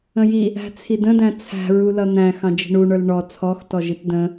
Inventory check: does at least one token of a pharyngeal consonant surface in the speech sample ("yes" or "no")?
no